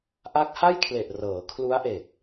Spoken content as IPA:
ʔ a˦˥ k̚ h a˥˩ j kʰ l e˨˩ ʔ r ɤː˩˦ kʰ l u˦˥ a̯ ʔ e˨˩ k̚

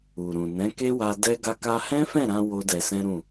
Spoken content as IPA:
u˨ ɾ ũ˨ n ɛ̃˨˦ k e˦ w a˧ d ɛ˦ ɡ a˦ k a˧ h ɛ̃˦ f ɛ̃˦˨ ɾ ã˧ w o˦ d ɛ˧ s ɛ̃˦ ɾ ũ˦˨

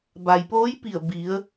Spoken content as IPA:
b a˩ j p oː˧˥ j p i˧˩ ə̯ b i˩˧ ə̯

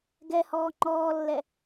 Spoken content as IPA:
ɡ ɛ h ɔː ŋ͡ǃ ɔː lː ɛ

